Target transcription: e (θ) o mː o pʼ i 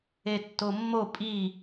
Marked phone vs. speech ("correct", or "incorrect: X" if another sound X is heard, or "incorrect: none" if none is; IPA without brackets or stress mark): incorrect: tː